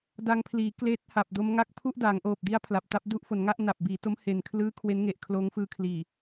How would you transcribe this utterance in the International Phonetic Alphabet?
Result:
d a˧ ŋ pʰ l iː˩˦ k l eː˦˥ t̚ h a˨˩ p̚ d o˦˥ m ŋ a˦˥ k̚ pʰ u˥˩ ʔ d a˩˦ ŋ ʔ oː˨˩ p̚ d i˦˥ a̯ pʰ l a˨˩ p̚ t a˦˥ p̚ d u˦˥ ʔ f o˩˦ n ŋ a˥˩ ʔ n a˨˩ p̚ b iː˩˦ t o˦˥ m h e˨˩ n kʰ l ɯː˦˥ kʰ w e˦˥ n ŋ e˨˩ ʔ kʰ l oː˦˥ ŋ f ɯː˧ kʰ l iː˨˩

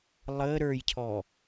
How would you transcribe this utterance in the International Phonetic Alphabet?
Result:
lˠ ə ɾ ə˞ j cʰ ɔ

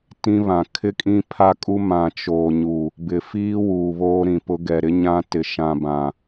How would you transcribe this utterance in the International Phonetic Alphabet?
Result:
t ĩ˦ β ã˨ kʰ ɪ˦ kʼ ĩ˦ pʰ a˦ kʼ u˦ m ã˨ t͡ʃ oː˨ ɲ u˨ | b ɪ˨ f iː˦ w uː˨ β oː˦ ɾ ĩ˨ p ʊ˦ ɡ ɛ˨ ɾ ɪ˦ ɲ ã˦ t ɪ˨ ʃ ã˨ b ã˨

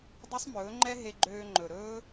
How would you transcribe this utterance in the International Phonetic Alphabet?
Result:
dˤ ɵ˦ sˤ m ɵː˨˦ ŋ͡ǃ ɛ˦ ɦ e˧ ɡ͡ǃ øː˧ ŋ͡ǃ ɵ˨ ɾ ɵː˦

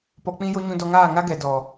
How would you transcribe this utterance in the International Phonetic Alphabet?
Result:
p ɔ˧ k͡p ĩ˦ j o˦ ɲ ũ˧ d ɔ˧ ŋ aː˦˨ ŋ a˦ ɡ ɛ˨ d ɔ˨

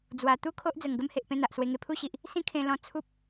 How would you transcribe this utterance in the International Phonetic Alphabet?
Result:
d͡z w a˨˩ t̪ u˦ kʰ o˦ ʔ d͡z ə˨˩ ŋ ɡ ə˦ m h e˨ ʔ p ẽ˥˧ n̪ a˨ ʔ s w e˧ ŋ e˧ pʰ u˦ ɕ i˨ ʔ | s ĩ˦ kʰ ẽ˧ l ɔ̃˧ t͡sʰ u˦ p̚

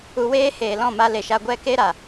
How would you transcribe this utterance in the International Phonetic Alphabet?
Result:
u˧ w eː˦ h eː˨ l ɔ̃˦˨ m a˧ l e˨ ʃ a˧ ɡʷ ɛ˧ k e˧ ɾ a˨

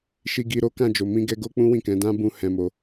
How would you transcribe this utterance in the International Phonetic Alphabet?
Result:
ʃ i˧ ɡ i˧ ɾ o˦ k ã˦˨ d͡ʒ o˨ m ĩ˧ ɡ ɛ˧ ɡ o˦ k͡p ũ˦ w ĩ˦˨ k ɛ̃˨˦ d ã˦ b ũ˧ h ɛ̃˧ m o˧

